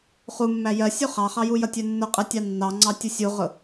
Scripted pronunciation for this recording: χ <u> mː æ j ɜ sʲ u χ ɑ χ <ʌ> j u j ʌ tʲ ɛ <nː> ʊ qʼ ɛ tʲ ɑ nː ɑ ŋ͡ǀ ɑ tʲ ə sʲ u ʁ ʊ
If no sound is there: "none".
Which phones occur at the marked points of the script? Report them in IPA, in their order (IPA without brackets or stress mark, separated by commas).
u, ɑ, nː